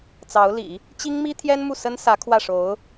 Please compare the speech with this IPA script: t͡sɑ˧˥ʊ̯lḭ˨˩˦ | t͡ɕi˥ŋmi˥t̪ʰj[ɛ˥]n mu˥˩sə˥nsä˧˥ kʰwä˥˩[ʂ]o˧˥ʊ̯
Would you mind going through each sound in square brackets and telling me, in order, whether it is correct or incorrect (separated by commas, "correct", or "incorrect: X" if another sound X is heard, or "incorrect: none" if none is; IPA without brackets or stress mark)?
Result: correct, correct